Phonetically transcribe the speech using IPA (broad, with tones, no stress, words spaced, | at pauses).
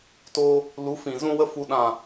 toː˧ | lu˨˦ fĩ˨ zũ˧wə˧ fu˨ɗã˨